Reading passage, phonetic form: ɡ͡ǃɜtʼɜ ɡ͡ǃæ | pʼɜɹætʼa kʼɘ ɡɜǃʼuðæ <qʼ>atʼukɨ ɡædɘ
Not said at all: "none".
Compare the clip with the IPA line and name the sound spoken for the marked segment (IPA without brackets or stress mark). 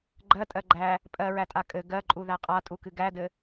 qʼ